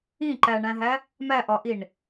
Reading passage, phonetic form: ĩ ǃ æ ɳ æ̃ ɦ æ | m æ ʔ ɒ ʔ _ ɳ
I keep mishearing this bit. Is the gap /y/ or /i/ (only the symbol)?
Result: i